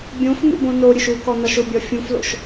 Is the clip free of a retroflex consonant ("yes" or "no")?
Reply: yes